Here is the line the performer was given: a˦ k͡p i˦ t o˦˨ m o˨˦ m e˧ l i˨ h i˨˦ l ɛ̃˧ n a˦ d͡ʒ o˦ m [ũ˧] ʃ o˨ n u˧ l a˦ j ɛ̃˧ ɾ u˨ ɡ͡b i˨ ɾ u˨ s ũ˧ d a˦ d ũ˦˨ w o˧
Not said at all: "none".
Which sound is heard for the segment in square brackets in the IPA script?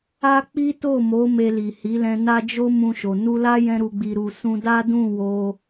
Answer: ũ˧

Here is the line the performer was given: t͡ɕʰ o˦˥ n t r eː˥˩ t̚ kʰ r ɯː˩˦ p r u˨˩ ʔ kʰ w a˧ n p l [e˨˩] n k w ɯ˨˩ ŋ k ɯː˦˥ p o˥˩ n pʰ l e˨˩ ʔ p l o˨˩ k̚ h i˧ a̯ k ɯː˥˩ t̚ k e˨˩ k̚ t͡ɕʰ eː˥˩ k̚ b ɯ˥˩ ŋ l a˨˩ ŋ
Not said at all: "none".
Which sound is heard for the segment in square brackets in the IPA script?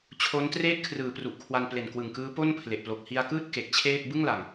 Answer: e˨˩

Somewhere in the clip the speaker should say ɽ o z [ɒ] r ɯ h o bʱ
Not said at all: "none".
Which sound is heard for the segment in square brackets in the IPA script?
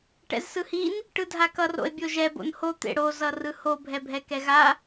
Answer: ʌ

